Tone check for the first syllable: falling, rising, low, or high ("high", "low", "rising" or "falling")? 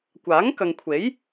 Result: rising